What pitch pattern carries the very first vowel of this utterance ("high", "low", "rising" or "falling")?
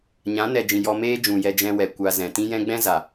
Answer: rising